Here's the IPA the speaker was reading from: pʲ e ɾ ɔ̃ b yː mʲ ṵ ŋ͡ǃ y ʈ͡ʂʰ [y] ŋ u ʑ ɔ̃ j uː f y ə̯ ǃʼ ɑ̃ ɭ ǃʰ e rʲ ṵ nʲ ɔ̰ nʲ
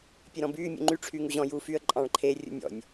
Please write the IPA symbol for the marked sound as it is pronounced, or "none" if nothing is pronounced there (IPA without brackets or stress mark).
yː